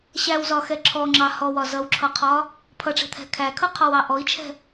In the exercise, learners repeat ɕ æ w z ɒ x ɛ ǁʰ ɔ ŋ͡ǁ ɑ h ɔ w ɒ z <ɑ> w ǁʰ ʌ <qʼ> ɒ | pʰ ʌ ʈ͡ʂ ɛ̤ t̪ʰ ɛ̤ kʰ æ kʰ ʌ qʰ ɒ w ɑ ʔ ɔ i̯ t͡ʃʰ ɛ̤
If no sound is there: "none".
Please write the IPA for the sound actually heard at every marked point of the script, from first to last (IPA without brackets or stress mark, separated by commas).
ʌ, qʰ